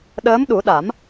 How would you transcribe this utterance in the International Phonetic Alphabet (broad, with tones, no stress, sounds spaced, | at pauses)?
ɗ əː˧˥ m ɗ u˨˩˦ ɗ a˨˩˦ m